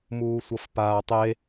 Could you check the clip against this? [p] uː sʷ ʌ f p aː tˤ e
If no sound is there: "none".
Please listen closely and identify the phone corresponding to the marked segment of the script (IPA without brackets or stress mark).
m